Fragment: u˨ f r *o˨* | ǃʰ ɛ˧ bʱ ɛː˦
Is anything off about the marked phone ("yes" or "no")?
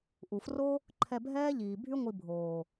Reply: yes